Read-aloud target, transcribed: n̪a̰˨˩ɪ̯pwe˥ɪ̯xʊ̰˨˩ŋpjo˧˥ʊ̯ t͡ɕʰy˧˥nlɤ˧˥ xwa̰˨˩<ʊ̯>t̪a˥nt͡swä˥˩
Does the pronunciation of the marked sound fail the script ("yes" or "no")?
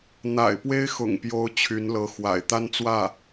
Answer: yes